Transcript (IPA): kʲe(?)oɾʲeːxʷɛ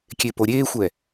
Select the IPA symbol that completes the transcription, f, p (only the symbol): p